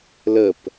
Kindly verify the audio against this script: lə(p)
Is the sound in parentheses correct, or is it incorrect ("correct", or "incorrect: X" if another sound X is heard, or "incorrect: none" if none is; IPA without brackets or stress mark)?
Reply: correct